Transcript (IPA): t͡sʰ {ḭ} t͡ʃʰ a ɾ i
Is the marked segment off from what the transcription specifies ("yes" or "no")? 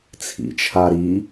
no